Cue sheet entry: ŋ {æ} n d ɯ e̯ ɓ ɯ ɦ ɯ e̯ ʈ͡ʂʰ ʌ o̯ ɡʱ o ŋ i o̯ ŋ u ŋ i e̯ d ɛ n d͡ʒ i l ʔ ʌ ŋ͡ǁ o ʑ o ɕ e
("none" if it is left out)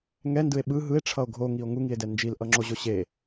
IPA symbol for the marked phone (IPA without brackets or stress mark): ɛ